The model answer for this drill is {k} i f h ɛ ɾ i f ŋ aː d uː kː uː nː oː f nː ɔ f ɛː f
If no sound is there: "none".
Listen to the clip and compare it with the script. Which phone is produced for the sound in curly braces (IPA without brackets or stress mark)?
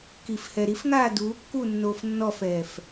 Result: k